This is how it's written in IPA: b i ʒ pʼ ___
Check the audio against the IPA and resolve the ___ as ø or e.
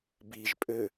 ø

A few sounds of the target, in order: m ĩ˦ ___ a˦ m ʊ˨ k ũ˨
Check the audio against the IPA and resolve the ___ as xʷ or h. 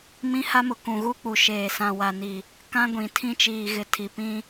h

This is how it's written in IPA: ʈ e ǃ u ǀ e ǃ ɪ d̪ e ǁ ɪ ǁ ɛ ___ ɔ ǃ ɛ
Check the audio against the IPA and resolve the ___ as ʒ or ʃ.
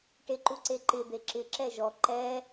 ʒ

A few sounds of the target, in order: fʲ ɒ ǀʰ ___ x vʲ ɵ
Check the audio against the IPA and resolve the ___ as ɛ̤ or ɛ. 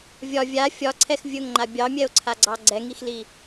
ɛ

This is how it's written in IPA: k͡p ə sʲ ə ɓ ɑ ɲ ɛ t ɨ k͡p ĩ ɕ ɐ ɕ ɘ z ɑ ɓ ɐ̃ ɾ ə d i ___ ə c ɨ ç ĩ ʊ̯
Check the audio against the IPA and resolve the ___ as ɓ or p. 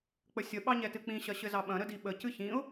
ɓ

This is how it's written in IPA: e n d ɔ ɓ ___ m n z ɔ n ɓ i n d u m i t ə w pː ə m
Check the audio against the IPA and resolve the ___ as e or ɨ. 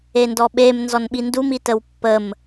e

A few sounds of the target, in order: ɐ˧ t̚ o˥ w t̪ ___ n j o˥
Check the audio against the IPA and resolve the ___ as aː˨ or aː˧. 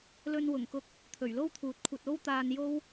aː˧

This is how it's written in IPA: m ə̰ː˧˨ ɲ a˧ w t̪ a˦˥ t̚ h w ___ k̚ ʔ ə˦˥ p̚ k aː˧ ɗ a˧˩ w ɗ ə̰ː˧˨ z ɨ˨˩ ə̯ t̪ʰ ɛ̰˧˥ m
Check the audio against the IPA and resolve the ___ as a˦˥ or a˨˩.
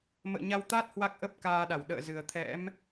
a˦˥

